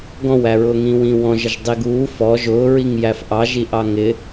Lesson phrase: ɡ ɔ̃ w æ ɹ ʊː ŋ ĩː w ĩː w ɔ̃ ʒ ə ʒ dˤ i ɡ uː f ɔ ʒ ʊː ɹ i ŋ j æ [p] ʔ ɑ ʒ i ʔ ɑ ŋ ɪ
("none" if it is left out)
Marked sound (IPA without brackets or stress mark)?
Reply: f